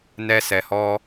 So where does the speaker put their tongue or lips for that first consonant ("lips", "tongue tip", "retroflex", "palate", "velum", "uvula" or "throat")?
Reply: tongue tip